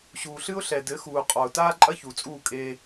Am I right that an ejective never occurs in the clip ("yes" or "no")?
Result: no